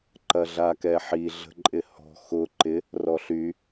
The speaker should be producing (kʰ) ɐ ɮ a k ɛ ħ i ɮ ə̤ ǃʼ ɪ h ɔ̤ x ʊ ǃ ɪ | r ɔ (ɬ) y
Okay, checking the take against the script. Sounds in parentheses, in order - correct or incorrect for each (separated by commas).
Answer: incorrect, correct